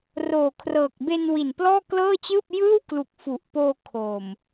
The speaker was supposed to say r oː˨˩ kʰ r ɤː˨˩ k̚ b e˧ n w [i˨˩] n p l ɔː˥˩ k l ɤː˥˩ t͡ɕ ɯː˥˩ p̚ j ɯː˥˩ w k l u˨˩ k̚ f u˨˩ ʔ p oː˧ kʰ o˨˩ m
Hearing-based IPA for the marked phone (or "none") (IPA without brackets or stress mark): i˨˩